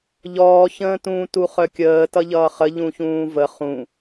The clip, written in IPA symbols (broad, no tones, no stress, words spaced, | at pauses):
ʎɔːçə̃ːtũː tuχœkʲəː tʌʎʌːχə ʎũçũːvə χũ